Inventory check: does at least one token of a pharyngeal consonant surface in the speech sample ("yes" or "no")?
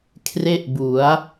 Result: no